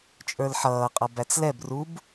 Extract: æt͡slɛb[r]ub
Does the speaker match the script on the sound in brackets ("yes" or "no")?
yes